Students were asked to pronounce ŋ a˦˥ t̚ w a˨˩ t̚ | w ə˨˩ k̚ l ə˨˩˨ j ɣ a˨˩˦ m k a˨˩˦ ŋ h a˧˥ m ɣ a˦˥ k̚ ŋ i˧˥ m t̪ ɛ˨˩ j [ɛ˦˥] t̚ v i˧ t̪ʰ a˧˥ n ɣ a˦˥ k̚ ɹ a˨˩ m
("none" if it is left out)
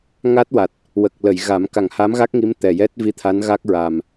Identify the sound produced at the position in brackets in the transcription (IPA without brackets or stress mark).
ɛ˦˥